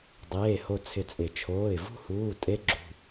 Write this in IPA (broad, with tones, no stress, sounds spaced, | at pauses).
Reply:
dˤ eː˩˧˩ h o˧˩ t͡sʰ ɪ˧˩ t͡sʼ ɪ˨˩˦ t͡ʃʰ oː˩˧˩ ɪ̯ v ṳ˥˨ h uː˩˧˩ tʼ e˦˥ ɡ͡ǁ ṳ˩˧˩